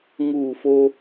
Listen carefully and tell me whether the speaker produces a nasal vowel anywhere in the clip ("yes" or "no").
no